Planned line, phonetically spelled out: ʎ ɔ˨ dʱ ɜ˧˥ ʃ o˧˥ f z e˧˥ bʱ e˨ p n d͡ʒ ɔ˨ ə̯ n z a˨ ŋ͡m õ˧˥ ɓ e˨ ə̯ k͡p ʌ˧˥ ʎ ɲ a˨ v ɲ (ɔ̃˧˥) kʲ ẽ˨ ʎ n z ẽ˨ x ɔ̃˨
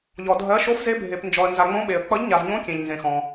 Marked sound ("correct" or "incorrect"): incorrect